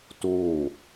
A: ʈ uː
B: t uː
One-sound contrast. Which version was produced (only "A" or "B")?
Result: B